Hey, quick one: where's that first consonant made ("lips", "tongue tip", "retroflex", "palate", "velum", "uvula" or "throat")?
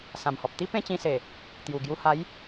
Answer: tongue tip